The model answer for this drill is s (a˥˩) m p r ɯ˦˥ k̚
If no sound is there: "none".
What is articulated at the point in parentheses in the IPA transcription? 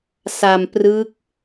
a˧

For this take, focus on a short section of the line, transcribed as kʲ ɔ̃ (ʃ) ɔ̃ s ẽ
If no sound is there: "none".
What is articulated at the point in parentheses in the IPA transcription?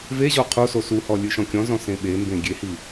z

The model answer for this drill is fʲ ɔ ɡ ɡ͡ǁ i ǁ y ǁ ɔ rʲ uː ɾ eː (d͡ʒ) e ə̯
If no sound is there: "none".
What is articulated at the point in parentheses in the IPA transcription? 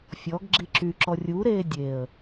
dʲ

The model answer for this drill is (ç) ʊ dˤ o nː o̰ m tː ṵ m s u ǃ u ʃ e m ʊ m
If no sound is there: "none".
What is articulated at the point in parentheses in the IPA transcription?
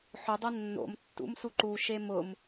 ħ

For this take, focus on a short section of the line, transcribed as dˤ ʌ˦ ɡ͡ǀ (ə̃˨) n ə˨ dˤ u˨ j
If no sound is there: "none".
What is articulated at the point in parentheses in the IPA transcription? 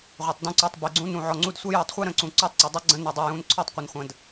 ə̃˧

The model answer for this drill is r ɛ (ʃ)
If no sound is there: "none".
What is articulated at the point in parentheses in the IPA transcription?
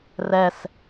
s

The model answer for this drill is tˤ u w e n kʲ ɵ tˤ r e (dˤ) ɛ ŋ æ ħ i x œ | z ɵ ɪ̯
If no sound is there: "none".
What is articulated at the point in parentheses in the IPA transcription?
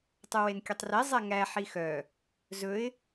zˤ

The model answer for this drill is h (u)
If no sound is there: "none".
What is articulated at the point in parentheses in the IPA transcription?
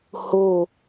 o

